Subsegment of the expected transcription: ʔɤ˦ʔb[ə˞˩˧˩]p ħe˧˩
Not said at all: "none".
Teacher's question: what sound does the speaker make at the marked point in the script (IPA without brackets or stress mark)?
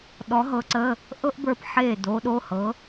ə˞˧˩